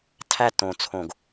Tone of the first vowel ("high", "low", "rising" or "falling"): falling